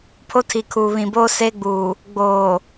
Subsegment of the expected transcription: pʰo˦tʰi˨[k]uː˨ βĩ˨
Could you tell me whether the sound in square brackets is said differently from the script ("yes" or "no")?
yes